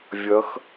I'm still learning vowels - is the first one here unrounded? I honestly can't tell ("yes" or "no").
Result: yes